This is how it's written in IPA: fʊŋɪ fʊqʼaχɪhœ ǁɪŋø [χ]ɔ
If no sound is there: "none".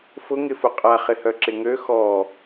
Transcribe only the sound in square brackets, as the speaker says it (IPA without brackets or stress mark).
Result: x